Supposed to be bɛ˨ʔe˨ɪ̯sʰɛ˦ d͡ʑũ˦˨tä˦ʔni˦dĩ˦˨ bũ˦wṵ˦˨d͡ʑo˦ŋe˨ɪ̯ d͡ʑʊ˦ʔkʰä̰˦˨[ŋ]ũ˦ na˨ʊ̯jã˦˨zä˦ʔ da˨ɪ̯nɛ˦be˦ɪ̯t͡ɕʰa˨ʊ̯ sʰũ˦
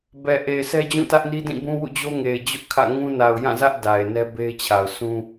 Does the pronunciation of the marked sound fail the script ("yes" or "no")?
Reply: no